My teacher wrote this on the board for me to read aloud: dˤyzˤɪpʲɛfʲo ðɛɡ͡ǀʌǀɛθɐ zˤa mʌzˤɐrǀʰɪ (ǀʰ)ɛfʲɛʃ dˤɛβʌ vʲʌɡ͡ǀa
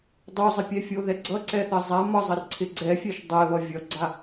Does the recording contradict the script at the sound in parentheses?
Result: yes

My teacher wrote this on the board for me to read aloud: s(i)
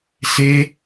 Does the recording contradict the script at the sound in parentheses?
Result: yes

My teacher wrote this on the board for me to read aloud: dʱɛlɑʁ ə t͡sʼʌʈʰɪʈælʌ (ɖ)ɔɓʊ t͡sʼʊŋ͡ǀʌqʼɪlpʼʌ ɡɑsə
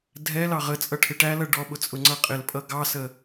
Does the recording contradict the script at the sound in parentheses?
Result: no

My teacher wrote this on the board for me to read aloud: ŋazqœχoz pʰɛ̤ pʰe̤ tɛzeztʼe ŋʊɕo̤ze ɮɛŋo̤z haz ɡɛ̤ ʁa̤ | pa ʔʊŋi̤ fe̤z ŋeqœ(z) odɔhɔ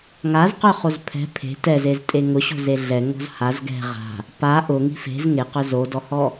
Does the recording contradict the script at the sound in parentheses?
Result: no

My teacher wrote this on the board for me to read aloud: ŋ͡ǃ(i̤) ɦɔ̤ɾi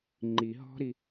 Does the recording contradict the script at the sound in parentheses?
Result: yes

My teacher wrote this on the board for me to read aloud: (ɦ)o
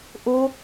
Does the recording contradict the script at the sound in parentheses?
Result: yes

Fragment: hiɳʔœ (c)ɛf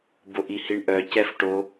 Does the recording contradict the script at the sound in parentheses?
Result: no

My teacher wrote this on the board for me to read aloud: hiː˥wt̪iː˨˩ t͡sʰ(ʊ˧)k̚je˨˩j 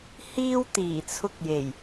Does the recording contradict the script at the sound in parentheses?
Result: no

